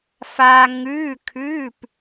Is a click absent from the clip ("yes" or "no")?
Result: yes